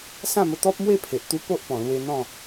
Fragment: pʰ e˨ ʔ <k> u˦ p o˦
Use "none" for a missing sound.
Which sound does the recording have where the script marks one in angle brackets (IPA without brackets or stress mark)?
t̪